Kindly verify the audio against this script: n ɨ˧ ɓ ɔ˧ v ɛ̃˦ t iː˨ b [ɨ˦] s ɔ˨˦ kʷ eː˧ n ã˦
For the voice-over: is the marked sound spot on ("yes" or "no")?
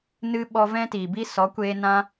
no